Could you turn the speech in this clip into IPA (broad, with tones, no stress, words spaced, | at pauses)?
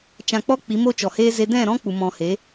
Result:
t͡ʃã˧k͡pɔ˦ k͡pi˨˦mo˦t͡ʃɔ˨heː˦ ze˧dɛ̃˦˨ɾɔ̃˦ k͡pu˨mɔ̃˨he˨˦